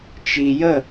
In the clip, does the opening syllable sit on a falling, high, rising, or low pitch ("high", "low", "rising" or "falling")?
low